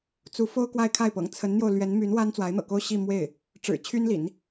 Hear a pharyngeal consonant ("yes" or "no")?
no